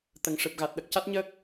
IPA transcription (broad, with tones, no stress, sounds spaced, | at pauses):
t̪ ə˨˩ ŋ ʂ ɨ˨˩ p̚ ɣ a˨˩ t̚ ɗ ə˨˩ k̚ c a˦˥ t̚ ɲ əː˦˥ k̚